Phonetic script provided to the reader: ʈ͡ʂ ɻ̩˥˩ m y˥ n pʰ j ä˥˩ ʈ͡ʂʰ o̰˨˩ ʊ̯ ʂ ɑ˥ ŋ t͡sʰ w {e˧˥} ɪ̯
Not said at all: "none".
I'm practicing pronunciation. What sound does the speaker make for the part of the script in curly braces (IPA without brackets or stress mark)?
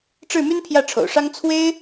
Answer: e˥